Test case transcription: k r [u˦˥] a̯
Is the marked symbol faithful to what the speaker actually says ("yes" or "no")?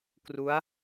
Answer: yes